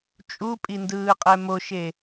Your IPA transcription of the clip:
t͡ʃʼ u pʼ i n d ɯː qʼ ɛ m o ʃ e

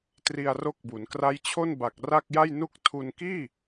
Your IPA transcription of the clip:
t r i˧ a̯ r o˦˥ k̚ b u˩˦ n k r a˦˥ j t͡ɕʰ o˥˩ n b a˨˩ k̚ r a˥˩ k̚ j a˥˩ j n u˥˩ k̚ tʰ u˧ n k iː˥˩

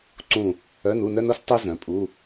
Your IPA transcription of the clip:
ǀ ũ˦˨ | œ˧˥˧ n u˧˥˧ n œ˥ n o˥ s tˤ u˥ z œ̃˩˥ pʼ u˧˥˧

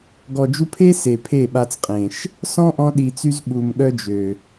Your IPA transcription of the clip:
ɡ ɔ˨ d͡ʒ u˧ pʰ e˦ s e˨ pʰ e˦˨ ɓ a˧ t͡s qʼ ẽ˨ ʃ | s ɔ̃˦ ʔ ɔ̃˧ ɗ i˨ t͡s y˧ z ɓ u˨ m ɠ œ˦ d͡ʒ ø˨

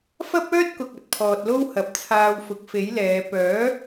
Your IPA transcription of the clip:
f ɐ˥ p̚ œː˥ t̚ k ʊ˨ k̚ ɐ˨ t̚ pʰ ɔː˨ t̚ l o˥ w h ɐ˨˥ p̚ t͡sʰ aː˧ w f ʊ˨˥ k̚ f e˨˥ j l ɛː˨˧ p œː˨˥

